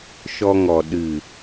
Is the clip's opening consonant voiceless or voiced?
voiceless